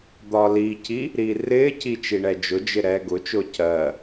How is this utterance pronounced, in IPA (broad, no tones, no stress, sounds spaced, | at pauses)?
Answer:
d̪ ɒ l iː cʰ i | ɾ iː r ɪː cʰ i t͡ʃ i ɳ ɛ d͡ʒ ʊ d͡ʒ ɪ ɾ ɛː ɡ ʊ t͡ʃ ʊː cʰ ɜ